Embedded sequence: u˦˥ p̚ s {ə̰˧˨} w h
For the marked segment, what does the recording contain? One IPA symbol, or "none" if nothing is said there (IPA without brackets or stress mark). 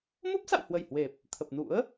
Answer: a̰˧˨